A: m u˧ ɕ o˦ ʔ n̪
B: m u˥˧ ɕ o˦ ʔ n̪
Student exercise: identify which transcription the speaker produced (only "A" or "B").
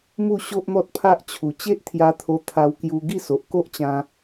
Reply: B